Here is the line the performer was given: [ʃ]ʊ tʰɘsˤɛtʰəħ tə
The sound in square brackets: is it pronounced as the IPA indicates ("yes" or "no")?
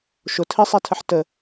yes